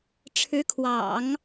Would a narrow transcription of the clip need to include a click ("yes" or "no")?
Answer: no